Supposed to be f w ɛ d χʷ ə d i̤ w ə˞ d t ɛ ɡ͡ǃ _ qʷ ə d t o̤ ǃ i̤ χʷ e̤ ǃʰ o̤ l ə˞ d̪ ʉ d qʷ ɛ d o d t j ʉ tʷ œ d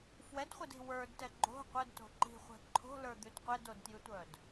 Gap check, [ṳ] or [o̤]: o̤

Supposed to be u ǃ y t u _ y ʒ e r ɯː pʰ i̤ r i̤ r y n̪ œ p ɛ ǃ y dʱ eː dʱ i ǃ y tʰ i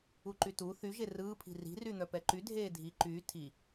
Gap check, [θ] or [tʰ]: θ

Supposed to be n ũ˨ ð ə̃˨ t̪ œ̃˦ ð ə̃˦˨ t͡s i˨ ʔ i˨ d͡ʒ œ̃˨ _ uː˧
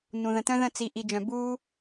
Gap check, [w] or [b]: b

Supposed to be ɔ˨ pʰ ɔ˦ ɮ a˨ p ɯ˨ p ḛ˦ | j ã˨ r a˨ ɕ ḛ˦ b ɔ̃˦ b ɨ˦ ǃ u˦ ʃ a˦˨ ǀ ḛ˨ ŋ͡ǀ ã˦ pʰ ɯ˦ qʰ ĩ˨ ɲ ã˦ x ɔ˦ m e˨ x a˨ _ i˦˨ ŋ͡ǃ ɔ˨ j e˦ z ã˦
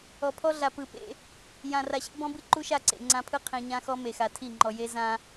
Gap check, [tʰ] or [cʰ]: tʰ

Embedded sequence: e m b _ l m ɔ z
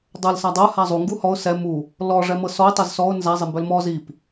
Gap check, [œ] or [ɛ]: œ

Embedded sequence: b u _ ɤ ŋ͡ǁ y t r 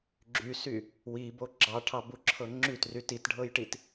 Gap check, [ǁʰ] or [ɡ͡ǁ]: ǁʰ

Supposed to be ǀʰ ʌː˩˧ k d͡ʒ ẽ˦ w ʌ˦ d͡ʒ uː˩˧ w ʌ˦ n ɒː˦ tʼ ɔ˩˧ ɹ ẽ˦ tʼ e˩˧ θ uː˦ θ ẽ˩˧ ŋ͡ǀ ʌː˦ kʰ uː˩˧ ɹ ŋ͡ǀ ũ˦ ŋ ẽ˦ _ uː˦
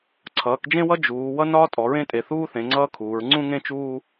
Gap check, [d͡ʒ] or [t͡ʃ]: t͡ʃ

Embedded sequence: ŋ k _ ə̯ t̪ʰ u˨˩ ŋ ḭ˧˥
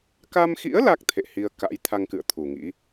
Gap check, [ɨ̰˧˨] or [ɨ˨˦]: ɨ̰˧˨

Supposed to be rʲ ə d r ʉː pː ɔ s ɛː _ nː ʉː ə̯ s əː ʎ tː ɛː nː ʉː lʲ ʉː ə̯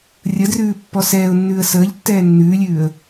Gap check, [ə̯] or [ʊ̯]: ʊ̯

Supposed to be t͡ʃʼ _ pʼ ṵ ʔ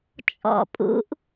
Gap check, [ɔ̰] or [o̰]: ɔ̰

